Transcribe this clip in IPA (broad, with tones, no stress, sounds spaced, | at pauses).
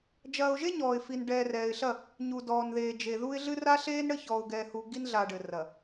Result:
d͡ʒ ɐː˨ ʊ̯ ʒ e˦ ɲ ɔː˨ ɪ̯ f i˨ n ɖ ɛː˨ r ɛː˨ ɪ̯ ɬ ɐ˦˨ | ɲ u˨ d ɔː˨ n ð eː˨ d͡ʒ e˨ ð u˦ ɪ̯ ɮ ɨ˦ r a˦ ɬ eː˦ n ɽ ɘ˦ ç ɔː˨ ʊ̯ ɡ ɛː˨ h u˨ ɡ i˦ n ɮ a˨ ɖ ɘ˨ r ɐ˨